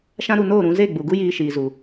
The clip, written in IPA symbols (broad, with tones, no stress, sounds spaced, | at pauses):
ʃ ã˦ ɾ u˧ n oː˦˨ ɾ ũ˧ z e˦˨ ɡ͡b u˨ ɡ u˦ j iː˧ ʃ iː˨ z u˨